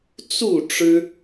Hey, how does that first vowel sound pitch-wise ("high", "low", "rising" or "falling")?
falling